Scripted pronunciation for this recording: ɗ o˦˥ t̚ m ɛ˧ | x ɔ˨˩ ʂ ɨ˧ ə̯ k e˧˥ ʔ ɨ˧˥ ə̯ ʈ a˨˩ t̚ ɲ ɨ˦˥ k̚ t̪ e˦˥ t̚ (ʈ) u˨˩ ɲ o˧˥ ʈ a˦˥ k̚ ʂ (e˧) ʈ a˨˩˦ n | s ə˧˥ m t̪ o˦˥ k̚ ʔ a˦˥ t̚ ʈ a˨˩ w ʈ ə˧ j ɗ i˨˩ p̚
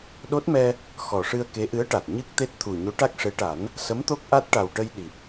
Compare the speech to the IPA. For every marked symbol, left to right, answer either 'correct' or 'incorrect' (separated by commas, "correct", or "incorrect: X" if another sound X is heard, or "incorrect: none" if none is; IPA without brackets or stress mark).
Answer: incorrect: t̪ʰ, incorrect: e˧˥